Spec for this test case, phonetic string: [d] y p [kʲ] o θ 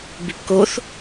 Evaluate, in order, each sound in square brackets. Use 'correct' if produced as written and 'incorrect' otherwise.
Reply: incorrect, incorrect

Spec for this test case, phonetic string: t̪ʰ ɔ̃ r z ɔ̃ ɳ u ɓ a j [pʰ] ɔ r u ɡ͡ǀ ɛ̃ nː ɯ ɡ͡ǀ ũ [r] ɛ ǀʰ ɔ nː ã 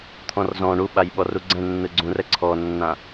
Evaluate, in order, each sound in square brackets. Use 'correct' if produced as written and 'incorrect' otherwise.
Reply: incorrect, correct

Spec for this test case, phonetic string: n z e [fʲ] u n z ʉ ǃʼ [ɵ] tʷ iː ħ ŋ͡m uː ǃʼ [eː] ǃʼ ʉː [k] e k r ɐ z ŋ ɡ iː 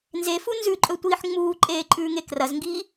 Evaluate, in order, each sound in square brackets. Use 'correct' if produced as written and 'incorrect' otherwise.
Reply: incorrect, correct, correct, incorrect

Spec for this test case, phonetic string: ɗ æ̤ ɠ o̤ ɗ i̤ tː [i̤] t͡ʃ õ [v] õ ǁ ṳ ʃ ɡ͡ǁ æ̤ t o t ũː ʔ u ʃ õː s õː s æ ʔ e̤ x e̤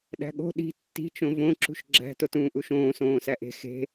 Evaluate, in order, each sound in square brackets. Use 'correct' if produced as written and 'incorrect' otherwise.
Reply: correct, correct

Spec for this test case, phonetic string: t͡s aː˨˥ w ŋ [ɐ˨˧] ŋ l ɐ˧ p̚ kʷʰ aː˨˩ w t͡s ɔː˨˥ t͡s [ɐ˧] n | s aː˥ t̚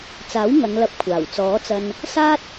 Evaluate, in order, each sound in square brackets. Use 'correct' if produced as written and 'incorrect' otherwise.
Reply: correct, correct

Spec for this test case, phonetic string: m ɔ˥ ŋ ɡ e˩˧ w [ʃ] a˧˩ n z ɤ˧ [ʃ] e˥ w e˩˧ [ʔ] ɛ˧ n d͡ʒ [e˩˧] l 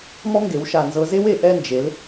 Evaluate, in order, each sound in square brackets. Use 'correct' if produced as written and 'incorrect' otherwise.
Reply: correct, incorrect, correct, correct

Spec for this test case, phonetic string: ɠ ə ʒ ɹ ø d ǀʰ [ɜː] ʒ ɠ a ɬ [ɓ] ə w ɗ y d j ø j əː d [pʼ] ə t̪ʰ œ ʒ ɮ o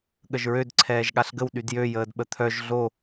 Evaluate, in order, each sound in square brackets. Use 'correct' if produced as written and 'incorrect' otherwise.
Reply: incorrect, incorrect, incorrect

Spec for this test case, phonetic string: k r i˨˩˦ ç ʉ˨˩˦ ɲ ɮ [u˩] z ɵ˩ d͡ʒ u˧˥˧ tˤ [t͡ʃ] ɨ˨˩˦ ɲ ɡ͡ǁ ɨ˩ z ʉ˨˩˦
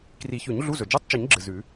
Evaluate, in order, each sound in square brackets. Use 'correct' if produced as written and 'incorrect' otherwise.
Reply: incorrect, correct

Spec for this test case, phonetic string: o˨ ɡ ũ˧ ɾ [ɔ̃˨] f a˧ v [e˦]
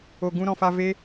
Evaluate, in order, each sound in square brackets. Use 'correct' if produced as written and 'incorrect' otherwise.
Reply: correct, correct

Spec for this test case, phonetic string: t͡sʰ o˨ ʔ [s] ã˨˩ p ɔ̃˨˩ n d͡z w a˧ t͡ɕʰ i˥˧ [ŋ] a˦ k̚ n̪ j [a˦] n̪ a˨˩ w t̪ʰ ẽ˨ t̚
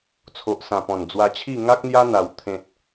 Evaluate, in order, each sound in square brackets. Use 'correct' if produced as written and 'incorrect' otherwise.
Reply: correct, correct, correct

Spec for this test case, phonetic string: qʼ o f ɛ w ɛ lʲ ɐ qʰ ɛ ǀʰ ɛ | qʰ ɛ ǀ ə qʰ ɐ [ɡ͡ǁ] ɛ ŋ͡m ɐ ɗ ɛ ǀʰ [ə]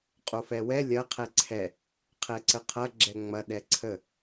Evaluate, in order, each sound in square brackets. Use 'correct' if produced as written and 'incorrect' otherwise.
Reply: correct, correct

